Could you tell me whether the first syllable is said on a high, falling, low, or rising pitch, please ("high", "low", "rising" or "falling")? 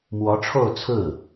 rising